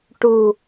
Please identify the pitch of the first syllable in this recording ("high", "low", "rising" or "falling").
low